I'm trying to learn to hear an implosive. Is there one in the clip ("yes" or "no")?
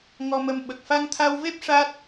yes